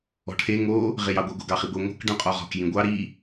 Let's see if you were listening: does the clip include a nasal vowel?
yes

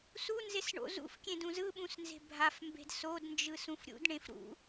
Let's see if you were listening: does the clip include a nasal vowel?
yes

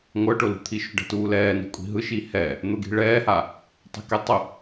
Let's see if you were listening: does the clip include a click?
no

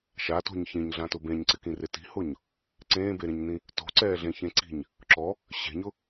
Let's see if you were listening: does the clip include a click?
yes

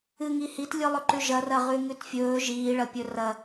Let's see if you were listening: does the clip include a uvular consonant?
yes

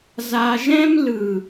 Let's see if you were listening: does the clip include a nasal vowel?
yes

